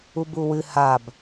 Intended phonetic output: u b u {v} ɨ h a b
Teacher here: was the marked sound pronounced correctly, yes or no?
no